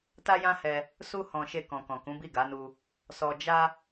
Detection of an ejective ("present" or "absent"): absent